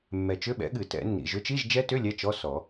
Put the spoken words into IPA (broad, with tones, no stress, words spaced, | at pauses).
mːɛ˨t͡ʃʏ˧˥˧ɓɛ̰˨˥ɠɨ˨˩˦ tɛ̰˨˩˦nːḭ˨ ʒʏ˨˥t͡ʃi˧˥˧ʒd͡ʒɛ˦˥tʏ˧˥˧ lʲɛ˧˥˧t͡ʃɔ˧˥˧ sɔ˨˩˦